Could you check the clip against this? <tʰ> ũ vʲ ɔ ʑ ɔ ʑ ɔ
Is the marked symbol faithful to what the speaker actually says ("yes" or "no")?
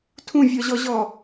yes